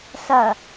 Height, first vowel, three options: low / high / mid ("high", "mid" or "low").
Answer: low